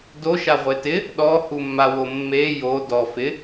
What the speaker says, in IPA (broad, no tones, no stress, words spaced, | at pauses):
doʃa ʁʷetɪ | ɗɔhumːawo mːe jo dɔ fɪ